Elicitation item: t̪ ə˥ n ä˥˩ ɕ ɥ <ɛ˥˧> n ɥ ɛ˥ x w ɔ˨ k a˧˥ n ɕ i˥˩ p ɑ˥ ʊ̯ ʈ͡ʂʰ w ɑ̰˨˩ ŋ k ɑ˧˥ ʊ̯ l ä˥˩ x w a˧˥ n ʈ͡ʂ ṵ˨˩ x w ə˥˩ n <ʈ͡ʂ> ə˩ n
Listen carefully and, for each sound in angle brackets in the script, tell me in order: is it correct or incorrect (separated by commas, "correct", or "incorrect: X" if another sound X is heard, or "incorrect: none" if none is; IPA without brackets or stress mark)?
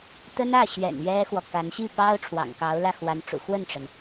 incorrect: ɛ̰˨˩, correct